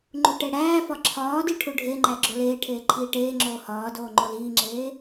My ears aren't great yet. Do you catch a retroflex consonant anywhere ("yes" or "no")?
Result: yes